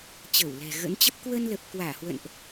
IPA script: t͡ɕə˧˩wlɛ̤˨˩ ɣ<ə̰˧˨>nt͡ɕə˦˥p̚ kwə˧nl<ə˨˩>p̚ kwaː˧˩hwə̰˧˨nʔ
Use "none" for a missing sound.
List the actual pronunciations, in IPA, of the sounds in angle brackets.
ə̰˧˥, ə˨˩

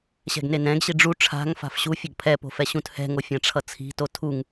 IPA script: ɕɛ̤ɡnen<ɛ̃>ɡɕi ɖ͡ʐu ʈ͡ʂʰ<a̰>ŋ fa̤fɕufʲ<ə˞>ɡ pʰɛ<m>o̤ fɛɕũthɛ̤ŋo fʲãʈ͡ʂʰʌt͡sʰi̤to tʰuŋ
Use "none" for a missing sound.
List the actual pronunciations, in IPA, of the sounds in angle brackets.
ɛ̃, a̤, ʌ, p

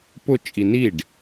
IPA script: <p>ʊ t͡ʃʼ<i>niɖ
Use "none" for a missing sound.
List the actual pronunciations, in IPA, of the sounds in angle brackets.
p, i

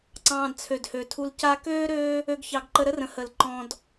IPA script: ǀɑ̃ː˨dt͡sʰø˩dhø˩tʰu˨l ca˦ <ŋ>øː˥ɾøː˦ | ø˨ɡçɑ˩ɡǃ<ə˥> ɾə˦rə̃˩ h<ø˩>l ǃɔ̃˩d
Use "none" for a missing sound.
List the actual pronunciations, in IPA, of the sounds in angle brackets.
k, ə˨, ə˩

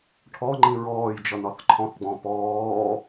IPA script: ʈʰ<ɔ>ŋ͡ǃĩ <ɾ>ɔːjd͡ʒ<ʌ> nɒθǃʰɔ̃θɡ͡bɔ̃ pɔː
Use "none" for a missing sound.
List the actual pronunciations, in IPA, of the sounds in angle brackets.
ɔ, ɹ, ʌ

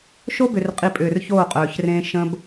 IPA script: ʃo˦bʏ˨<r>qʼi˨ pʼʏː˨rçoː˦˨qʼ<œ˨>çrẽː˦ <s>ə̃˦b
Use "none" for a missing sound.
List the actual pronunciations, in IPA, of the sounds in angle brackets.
r, œː˨, ʃ

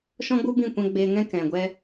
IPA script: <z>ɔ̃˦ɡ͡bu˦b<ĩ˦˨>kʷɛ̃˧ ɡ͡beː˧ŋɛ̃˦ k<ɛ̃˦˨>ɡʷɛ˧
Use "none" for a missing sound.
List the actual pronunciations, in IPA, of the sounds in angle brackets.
ʃ, ĩ˦˨, ɛ̃˨

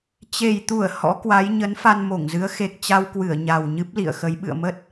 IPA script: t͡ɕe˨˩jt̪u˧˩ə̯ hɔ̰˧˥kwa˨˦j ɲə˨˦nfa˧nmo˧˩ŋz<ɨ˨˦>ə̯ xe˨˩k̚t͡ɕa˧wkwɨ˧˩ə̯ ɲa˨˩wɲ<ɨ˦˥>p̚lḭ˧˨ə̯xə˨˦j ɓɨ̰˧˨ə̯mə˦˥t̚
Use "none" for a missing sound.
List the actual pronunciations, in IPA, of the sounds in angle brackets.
ɨ˨˦, ɨ˦˥

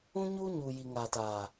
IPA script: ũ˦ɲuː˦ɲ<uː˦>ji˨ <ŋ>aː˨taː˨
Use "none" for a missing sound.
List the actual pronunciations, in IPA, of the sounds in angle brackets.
uː˨, ŋ

